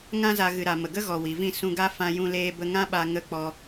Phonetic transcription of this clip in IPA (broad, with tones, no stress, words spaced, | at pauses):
ŋã˦za˧ ɣɨ˨ɾa˨ mə˨ɡə˦ɣɔ˨ wi˨vĩ˦˨ sũ˧ɡa˦fã˧ jũ˧leː˧bə˧ ŋã˦ɓa˧ ŋə˧k͡pɔ˧